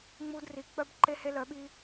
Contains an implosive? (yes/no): yes